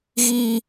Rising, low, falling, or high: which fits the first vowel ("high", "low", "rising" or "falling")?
high